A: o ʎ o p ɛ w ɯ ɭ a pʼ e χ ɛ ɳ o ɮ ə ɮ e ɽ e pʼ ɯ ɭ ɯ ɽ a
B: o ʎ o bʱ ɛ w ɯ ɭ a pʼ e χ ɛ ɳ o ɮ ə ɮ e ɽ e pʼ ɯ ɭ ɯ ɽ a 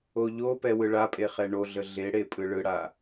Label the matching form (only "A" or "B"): A